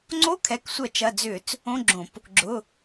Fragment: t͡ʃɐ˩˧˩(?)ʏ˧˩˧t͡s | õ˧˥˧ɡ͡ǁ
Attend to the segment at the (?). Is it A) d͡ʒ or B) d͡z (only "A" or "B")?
B